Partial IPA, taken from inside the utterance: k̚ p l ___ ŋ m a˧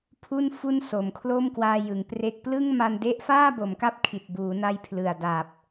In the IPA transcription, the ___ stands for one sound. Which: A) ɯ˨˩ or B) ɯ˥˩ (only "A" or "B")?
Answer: B